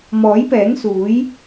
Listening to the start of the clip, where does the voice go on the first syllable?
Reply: rising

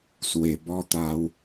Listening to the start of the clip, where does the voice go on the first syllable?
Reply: low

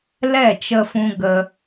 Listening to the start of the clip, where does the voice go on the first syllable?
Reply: falling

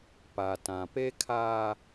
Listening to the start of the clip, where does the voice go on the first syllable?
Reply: low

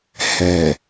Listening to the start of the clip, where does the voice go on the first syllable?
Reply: low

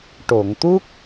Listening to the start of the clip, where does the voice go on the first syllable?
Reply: low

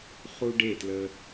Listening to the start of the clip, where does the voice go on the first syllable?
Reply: high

